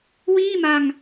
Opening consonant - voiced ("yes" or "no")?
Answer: yes